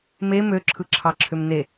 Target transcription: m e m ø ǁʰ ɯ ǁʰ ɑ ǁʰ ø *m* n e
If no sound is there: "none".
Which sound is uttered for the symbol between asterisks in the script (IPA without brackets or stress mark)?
m